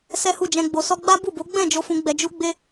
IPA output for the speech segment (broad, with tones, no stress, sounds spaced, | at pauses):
s ɛ˦ h u˦˨ d͡ʒ ɛ̃˧ ɡ͡b o˨ s ɔ˧ ɡ͡b a˦ b u˦˨ b o˨˦ ɡ͡b ɛ̃˦˨ d͡ʒ o˧ f ũ˧ ɡ͡b ɛ˧ d͡ʒ u˦ ɡ͡b e˦